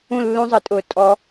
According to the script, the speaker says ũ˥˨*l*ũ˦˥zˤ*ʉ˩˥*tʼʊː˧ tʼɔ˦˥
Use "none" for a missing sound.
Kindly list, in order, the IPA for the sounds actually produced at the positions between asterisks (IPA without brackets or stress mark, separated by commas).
lː, ɨ˩˥